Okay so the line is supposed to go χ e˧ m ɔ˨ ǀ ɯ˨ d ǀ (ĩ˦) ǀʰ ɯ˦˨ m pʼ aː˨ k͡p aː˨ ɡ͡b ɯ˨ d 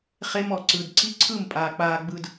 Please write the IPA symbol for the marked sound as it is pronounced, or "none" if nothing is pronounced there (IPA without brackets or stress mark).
i˦